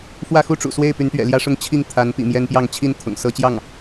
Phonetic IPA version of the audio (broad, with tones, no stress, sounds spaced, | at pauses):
f w ä˥˩ x u˥ ʈ͡ʂ ṵ˨˩ s w e˥˩ ɪ̯ p y˧˥ n t̪ ɥ ɛ̰˨˩ l j ä˥ ʂ ʊ˥˧ ŋ t͡ɕʰ i˥˩ ŋ t̪ʰ a˧˥ n p ḭ˨˩ m j ɛ˥ n p j ɑ˥˧ ŋ t͡ɕʰ i˥˩ n t̪ʰ ʊ̰˨˩ ŋ s ɤ˥ t͡ɕ j ɑ˥˩ ŋ